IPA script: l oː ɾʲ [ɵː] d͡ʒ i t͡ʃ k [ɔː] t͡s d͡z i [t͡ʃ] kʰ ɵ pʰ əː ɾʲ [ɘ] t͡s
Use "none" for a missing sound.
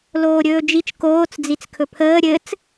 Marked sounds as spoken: ɵː, oː, t͡s, ɘ

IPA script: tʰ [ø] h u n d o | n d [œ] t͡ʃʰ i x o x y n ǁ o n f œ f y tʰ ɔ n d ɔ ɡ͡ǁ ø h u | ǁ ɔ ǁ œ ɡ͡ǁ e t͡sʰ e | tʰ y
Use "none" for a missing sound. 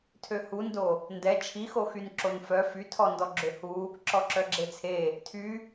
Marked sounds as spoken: ø, ɛ

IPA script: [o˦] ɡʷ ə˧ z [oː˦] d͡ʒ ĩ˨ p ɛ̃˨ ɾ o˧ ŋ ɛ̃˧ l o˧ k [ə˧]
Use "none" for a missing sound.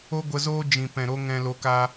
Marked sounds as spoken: o˦, oː˦, a˧

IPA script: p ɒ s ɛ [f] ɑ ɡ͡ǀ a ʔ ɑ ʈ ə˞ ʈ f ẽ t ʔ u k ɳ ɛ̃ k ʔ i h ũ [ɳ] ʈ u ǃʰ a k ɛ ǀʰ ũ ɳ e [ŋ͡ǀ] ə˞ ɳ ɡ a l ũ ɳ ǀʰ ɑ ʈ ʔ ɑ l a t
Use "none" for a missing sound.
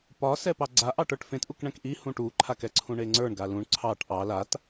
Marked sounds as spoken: p, none, ŋ͡ǀ

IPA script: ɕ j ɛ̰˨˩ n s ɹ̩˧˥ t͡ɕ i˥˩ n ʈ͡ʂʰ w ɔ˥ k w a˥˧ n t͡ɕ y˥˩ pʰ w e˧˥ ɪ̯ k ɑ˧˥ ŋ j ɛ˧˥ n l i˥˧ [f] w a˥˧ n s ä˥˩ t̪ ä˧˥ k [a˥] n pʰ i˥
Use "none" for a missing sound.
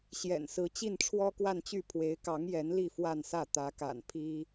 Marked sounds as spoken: f, a̰˨˩

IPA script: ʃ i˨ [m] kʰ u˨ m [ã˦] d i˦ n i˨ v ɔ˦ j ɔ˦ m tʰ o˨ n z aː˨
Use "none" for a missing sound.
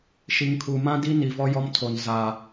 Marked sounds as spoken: ŋ, ã˦

